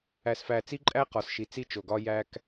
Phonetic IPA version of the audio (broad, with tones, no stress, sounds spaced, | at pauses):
æ˨ s f æ˨ t͡s i˦ ǃʼ æ˦ q ɒ˨ s ʃ i˨ t͡s i˦ t͡ʃ o˨ ɡ ɒ˦ j æ˦ k